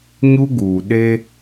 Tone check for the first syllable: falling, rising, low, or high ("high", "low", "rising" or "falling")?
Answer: high